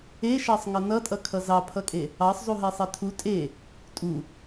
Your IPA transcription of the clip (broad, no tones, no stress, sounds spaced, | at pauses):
e ʃ ɑ sˤ ŋ ʌ n ʌ tʼ ʌ kʰ ʌ z ɑ pʰ ʌ kʼ e | ɑ sˤ zˤ u ɦ ɛ sˤ ɛ tʰ u tʼ e | tʼ u